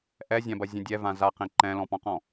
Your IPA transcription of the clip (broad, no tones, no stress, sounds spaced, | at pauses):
ʔ ɛ zʲ ã b ɐ zʲ ə̃ dʲ ɛ v ã z a q ẽ ǃ ɛ̃ l ɔ̃ p ɔ̃ q ɔ̃